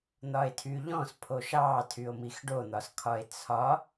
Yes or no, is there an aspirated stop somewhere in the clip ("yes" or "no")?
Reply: yes